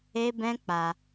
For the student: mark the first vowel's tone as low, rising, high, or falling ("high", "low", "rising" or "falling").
high